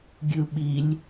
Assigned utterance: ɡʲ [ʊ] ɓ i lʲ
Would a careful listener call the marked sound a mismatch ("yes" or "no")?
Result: yes